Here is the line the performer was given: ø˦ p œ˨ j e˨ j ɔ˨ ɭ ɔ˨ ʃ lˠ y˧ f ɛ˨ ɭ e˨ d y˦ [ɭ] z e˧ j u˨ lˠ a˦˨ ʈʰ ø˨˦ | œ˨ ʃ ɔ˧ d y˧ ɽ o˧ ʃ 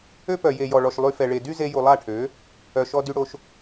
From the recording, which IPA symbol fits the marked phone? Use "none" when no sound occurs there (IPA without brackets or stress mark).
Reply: none